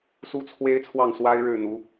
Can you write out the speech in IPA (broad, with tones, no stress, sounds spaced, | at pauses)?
s u˥ t͡sʰ w e˥ ɪ̯ t͡sʰ w ɑ˥˩ ŋ s w a˥ ɪ̯ ɻ ɻ̩˥˩ n̪ u˧˥